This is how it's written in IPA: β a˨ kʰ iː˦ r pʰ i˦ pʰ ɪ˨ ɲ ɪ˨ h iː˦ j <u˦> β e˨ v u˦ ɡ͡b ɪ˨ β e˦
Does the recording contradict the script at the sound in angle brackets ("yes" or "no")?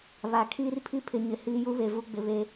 no